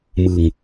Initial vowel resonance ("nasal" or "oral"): oral